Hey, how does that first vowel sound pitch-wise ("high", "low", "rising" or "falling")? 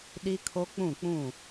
high